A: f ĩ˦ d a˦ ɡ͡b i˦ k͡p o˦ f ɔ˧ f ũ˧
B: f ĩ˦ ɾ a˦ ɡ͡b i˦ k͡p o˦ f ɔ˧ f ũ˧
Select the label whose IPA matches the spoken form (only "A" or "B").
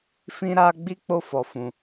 B